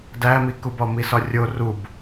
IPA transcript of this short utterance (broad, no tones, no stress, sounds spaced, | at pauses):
d æ m i k u b ɒ m i s ɒ rʲ o r u b